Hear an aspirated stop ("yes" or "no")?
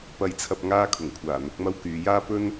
yes